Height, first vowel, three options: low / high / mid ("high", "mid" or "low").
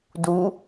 high